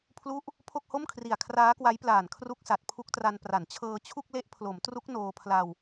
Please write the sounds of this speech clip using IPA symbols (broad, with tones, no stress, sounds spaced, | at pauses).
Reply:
pʰ l u˦˥ ʔ | pʰ o˥˩ k̚ h o˥˩ m kʰ r i˨˩ a̯ kʰ r aː˦˥ k w a˦˥ j p l aː˨˩ n kʰ r u˦˥ k̚ s a˨˩ t̚ pʰ u˦˥ k̚ t r a˧ n p r a˩˦ n t͡ɕʰ ɤː˧ t͡ɕʰ u˥˩ k̚ l e˦˥ ʔ pʰ l o˩˦ m t r u˦˥ k̚ n oː˧ pʰ l a˧ w